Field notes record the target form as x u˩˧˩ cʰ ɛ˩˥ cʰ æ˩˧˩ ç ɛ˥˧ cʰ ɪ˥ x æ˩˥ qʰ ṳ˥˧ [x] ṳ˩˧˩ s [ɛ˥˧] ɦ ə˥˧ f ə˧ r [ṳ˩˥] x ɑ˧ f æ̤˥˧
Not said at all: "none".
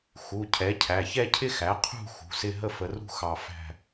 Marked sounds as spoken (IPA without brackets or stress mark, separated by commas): x, ɪ˥˧, ṳ˥˧